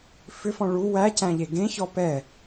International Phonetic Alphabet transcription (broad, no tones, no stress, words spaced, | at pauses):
fʏfɔ̃ ɭu wæcæ̃ʎe ɡẽçɔ pɛ